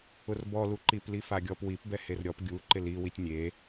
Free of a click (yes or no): no